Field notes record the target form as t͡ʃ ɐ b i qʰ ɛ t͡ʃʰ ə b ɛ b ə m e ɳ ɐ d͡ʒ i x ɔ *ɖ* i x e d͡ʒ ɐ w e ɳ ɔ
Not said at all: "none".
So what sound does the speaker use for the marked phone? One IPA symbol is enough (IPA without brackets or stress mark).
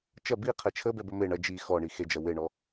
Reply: ɳ